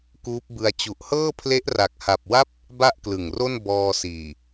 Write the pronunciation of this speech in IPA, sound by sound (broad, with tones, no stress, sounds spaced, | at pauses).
k uː˦˥ p̚ b ɯ˧ a̯ t͡ɕ u˨˩ ʔ h ɤː˥˩ pʰ l e˦˥ ʔ r a˨˩ k̚ h a˨˩ p̚ w a˥˩ p̚ | b a˥˩ ʔ k l ɯ˨˩ ŋ r o˥˩ n b ɔː˧ s iː˨˩